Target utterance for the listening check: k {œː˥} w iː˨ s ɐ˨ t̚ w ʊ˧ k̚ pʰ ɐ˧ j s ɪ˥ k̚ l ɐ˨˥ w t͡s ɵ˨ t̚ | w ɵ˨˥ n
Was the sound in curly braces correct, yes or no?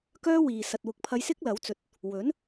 yes